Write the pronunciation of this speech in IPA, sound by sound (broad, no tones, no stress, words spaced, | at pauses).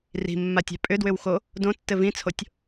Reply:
ri̤mːatʲa̤ pʼʏdwʏwxo | dõtːɘ vĩt͡sʰotʲ